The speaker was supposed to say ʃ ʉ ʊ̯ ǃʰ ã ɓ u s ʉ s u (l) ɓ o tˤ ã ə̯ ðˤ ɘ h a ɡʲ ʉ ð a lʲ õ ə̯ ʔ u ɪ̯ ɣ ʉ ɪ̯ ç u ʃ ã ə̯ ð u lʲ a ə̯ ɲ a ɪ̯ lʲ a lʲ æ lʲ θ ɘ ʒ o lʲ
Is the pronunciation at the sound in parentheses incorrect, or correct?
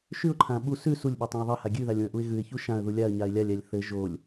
incorrect